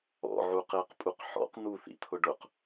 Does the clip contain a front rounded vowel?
no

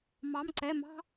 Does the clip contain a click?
yes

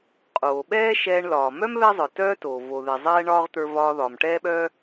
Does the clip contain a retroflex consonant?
yes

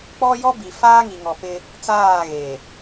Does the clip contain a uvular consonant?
no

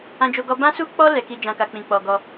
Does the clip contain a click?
no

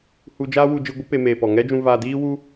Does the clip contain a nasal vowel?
yes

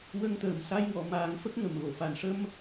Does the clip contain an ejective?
no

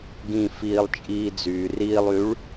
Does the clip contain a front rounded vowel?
yes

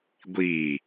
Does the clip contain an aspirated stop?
no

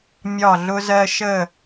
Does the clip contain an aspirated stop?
no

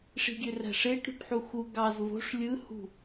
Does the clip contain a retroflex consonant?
yes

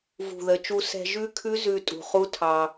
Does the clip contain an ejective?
yes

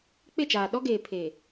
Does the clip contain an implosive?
yes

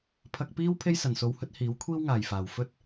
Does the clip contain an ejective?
no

